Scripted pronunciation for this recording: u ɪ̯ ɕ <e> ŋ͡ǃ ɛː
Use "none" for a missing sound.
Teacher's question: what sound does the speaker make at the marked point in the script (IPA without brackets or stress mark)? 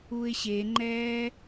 e